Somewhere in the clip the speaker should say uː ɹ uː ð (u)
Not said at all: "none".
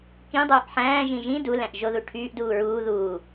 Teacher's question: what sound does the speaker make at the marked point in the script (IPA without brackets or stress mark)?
uː